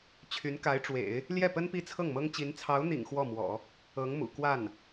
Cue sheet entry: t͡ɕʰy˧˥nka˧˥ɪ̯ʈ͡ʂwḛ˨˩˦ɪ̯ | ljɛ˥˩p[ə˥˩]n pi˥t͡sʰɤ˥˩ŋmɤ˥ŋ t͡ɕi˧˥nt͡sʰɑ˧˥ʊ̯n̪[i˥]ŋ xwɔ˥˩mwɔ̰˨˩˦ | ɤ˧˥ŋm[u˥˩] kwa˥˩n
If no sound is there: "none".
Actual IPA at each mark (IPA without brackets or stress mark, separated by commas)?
ə˥, ḭ˨˩, ṵ˨˩